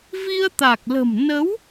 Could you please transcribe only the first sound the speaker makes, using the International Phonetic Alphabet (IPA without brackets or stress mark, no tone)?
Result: v